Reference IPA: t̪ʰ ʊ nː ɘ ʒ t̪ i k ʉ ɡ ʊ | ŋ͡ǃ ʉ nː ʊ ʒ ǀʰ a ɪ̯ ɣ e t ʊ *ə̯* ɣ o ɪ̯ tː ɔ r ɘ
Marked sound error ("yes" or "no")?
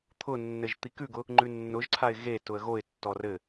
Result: no